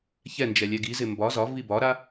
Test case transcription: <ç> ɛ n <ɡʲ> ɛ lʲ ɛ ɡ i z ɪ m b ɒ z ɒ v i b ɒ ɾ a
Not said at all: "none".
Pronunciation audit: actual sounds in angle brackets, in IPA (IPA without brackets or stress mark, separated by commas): ç, d͡ʒ